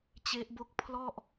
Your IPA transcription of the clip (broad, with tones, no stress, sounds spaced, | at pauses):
t͡ɕ e˦˥ ʔ b o˥˩ k̚ pʰ l ɔ˥˩ ʔ